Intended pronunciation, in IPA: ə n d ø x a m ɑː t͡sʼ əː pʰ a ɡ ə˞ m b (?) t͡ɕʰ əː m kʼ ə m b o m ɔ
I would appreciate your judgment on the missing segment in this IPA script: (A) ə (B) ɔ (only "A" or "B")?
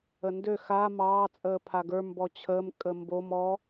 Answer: B